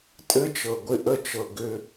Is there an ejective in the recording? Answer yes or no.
yes